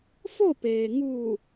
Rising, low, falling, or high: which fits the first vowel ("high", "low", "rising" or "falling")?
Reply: falling